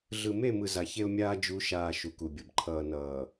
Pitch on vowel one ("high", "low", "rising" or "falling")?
low